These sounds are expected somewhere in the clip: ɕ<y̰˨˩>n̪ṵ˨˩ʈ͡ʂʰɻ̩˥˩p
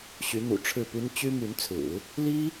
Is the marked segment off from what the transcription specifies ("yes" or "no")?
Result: yes